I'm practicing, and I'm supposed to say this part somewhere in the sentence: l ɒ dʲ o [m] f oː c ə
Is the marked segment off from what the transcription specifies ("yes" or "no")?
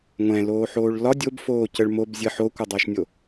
yes